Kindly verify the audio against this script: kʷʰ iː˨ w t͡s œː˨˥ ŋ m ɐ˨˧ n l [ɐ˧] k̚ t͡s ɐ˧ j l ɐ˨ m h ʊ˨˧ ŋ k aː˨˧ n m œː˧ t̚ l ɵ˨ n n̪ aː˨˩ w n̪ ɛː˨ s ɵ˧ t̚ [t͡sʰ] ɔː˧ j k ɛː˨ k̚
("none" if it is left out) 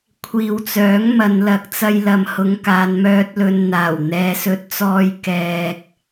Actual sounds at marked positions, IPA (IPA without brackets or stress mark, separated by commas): ɐ˨, t͡s